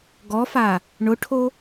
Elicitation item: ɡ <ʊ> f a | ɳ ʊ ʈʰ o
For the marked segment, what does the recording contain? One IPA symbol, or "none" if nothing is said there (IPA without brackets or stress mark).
ɔ